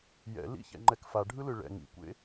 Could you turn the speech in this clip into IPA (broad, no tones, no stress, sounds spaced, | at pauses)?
j ɛ̰ l ḭ ç ɛ̰ ŋ͡ǃ ɛ k f a ɖʱ ɯ l ɯ ɭ ɛ̰ ŋ ḭ kʷ ḛ